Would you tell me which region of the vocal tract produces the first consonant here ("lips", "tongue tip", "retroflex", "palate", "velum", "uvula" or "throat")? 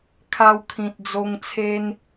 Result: velum